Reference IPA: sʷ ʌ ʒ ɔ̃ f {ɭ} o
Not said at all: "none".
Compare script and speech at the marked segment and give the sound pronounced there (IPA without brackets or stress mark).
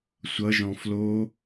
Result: l